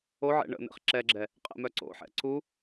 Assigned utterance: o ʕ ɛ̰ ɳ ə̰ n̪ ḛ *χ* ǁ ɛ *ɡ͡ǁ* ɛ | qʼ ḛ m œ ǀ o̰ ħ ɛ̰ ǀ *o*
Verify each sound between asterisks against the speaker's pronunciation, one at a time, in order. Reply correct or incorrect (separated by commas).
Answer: correct, correct, incorrect